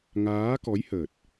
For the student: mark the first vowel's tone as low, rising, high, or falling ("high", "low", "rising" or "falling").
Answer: rising